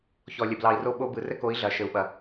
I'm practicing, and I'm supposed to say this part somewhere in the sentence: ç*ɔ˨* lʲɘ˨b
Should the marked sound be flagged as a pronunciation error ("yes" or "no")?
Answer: no